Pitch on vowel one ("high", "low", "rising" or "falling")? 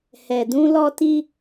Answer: low